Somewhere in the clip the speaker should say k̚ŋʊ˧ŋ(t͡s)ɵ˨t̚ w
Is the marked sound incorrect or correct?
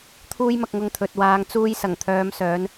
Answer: incorrect